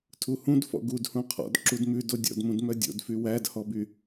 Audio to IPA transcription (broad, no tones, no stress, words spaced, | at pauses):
tʰuhũd fɔ̰ɡudhũ qʰɔ̰d ǁudmʉdo dʲɔ̰dmũd mœdʲo̰dfy wædhɔby